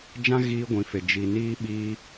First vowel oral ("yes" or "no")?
no